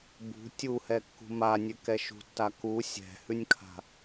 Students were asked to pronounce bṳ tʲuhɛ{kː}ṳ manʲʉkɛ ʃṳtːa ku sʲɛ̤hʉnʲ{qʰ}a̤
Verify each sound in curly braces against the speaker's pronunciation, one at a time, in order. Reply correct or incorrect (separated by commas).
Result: correct, incorrect